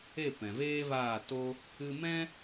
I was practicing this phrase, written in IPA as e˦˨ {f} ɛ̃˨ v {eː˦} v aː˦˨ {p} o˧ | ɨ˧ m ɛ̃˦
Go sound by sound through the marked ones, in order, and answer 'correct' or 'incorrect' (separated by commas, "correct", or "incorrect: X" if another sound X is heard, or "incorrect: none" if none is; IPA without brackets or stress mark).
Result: incorrect: p, correct, incorrect: t